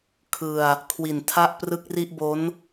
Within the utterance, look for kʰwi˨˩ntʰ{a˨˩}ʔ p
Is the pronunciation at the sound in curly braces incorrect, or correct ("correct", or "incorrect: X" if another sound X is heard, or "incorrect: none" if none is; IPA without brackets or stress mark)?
incorrect: a˥˩